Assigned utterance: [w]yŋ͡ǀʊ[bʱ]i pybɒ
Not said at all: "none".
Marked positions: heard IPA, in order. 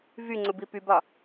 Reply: v, b

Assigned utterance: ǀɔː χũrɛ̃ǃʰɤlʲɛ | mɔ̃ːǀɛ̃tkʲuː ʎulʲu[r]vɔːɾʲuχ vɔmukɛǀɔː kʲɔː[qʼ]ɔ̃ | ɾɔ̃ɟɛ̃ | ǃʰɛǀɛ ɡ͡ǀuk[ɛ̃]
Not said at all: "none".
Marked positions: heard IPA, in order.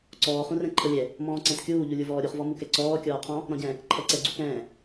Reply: none, qʰ, ɛ̃ː

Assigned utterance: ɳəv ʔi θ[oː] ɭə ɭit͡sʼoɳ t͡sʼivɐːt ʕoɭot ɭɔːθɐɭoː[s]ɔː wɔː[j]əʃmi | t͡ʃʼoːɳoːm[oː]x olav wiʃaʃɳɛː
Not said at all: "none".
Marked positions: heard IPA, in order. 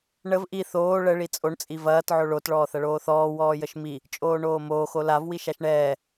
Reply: oː, θ, j, oː

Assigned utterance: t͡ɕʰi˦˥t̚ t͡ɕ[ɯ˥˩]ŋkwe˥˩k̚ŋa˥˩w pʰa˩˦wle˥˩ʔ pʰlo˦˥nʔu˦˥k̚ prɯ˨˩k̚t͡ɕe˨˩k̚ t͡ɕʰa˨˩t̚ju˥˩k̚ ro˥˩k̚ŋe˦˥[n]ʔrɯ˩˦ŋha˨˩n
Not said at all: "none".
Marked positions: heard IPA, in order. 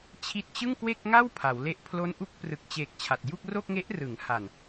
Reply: ɯ˥˩, none

